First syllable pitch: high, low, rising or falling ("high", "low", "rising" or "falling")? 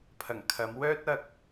low